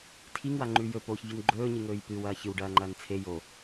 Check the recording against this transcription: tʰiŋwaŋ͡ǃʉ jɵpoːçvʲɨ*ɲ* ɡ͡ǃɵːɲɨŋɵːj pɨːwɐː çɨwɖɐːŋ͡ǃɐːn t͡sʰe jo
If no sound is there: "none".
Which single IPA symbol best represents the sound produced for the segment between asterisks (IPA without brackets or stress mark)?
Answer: n